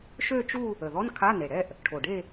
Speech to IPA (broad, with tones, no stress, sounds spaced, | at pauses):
ʃ ø˥˧ t͡ʃ u˥˧ | ə˨˩ ð ɔ˧˥˧ n kʰ a˧˥˧ n e˨˩ ɽ ɛ˥˧ ʔ | ʈʰ o˨˩ ɖ e˥˧